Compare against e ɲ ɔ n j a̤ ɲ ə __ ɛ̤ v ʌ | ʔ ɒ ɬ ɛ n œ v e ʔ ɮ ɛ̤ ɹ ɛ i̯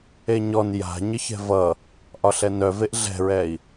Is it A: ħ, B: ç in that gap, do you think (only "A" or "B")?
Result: B